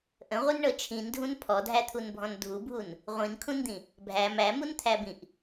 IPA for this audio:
ʔ ə̃ ʁʷ i n ɳ ɤ t͡ʃʰ ĩ n dʱ ũ n pʰ ɔ dʱ æ t̪ʰ u n bʱ ɔ̃ n dʱ u bʱ u n | ʁʷ ĩ n kʰ ũ n d̪ ĩ | bʱ æ m æ m u n t̪ʰ æ b ĩ ʔ

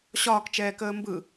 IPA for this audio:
ɕ ɒː k t͡ʃ ɛː k əː m b ɯ

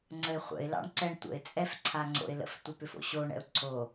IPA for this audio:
ŋ͡ǀ ə ɪ̯ χʷ ə̰ ɪ̯ l ɑ̰ ɳ ǀ ɛ ɳ tʷ ə̰ ɪ̯ t͡sʼ ɛ f ǀʰ a ŋ͡ǀ o̰ ɪ̯ l ə̰ f tʷ a p ʏ f o̰ ɕ o ɳ ɛ̰ ʊ̯ ǀʰ o

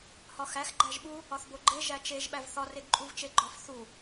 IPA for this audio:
h ɒ x æ x ɡ͡ǃ æ ʒ ɓ u | ɒ θ b o ɡ͡ǃ e ʒ æ t͡ʃ e ʒ ɓ æ v θ ɒ r e ɡ ǃʼ u v t͡ʃ e ɡ͡ǃ ɒ f θ u

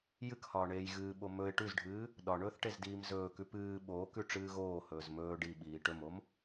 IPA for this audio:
j ɨ k h ɒː ɳ eː j ɣ ɨː ɓ o m ɵ ɪ̯ ʈ ʉ z ɖʱ ɨː | ɗ ɒ ɳ ɵː θ ʈ e z d iː m z ɵː k ʉ p ɨː ɓ oː k ʉ ʈ͡ʂ ɨː ɣ oː h ɵː z m ɵː ɖ i ɓ iː ʈ ɵ m o m

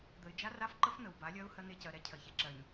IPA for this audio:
d̪ ə˨ ɪ̯ d͡ʒ a˦ r a˦ f ǃ ə˦ f n̪ ə˨ w b a˨˦ lʲ ɜ˦ ʊ̯ h ɜ˦ n̪ e˦ c ɜ˨ ɾ ɛ˦ cʰ ɜ˨ ç e˨ ǁ ɜ˨ ɲ

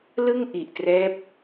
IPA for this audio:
l ɯ˥˩ ŋ ʔ i˨˩ ʔ t r ɛː˦˥ p̚

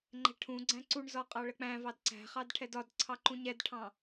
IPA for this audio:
ŋ͡ǃ ɛ̤ ʈʰ ũ ɡ͡ǀ æ̃ ǀ u ɳ z ɒ qʼ ɑ ɭ ə k͡p æ̃ v ɑ d ǀ æ̤ χ ɑ d ʈʰ ɛ d ɒ d ǀʰ ɑ ǃ ũ ɲ ɛ d ʈʰ ɑ̃

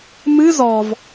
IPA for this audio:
m ɨ z ɔ v

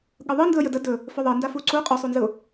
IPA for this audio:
ɠ ɯ ðˤ ɯ n d ɯ ə̯ j ə d ə d ɵ | f ɵ ðˤ ɜ n d a f u ǀ u qʼ ɵ sˤ u n z ɯ ʊ̯

